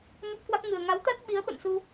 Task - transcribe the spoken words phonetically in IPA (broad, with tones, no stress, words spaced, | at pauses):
mə˦˥p̚kwa˦˥k̚ ŋɨ˨˩ə̯ ŋa˨˦wt̪a˦˥t̚ ɓi˨˦ə̯ɓə̰˧˨nsu˧